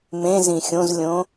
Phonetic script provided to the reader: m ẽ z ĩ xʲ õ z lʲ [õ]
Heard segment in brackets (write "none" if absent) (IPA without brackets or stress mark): õ